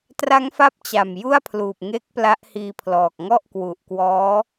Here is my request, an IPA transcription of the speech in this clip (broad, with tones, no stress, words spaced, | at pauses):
tra˦˥ŋfa˦˥p̚ t͡ɕa˨˩mju˥˩a̯pʰluː˨˩p̚ŋe˦˥k̚ pla˦˥ʔhiː˧pʰlɔː˨˩k̚ ŋɔ˥˩ʔkwu˨˩ʔkwɔː˦˥